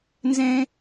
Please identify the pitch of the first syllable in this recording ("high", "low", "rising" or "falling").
high